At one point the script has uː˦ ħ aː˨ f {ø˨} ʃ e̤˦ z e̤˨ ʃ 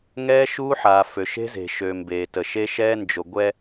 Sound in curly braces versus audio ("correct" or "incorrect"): correct